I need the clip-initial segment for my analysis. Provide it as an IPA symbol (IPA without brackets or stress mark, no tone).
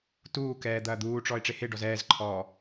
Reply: t